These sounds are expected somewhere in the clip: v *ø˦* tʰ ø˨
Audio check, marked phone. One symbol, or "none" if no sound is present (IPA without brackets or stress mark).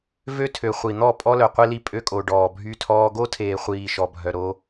ø˦